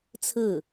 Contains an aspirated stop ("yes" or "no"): yes